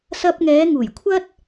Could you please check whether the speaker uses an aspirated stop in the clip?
yes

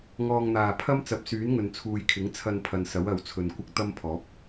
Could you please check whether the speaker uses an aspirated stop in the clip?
yes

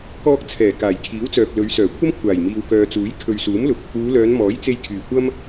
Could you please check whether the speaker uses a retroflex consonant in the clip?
no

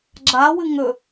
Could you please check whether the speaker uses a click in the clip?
yes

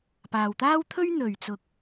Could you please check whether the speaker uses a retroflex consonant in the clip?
no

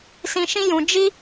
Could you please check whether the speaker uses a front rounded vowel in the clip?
no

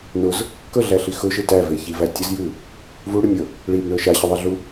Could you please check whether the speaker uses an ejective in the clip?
no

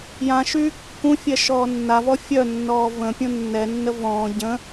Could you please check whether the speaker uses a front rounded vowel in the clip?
yes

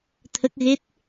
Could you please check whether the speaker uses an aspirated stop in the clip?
yes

